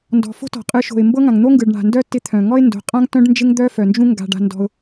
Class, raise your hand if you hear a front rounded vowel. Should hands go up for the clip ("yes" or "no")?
yes